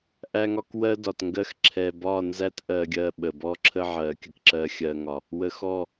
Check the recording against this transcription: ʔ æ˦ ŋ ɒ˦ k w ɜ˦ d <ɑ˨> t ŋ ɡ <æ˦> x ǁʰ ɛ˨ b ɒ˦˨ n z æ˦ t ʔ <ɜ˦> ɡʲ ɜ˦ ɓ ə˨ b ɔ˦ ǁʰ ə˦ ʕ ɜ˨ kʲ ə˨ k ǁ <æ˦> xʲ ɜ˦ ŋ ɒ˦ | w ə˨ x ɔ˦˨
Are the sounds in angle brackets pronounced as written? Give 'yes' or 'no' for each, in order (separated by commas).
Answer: no, no, yes, no